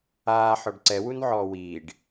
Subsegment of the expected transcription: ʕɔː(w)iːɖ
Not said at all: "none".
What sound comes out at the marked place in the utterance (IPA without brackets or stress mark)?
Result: w